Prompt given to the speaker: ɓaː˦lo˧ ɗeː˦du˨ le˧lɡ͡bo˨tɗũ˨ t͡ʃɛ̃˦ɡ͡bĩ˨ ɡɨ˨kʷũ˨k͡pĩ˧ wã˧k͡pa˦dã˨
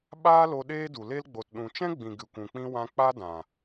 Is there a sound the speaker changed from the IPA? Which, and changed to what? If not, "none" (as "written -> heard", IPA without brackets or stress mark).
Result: none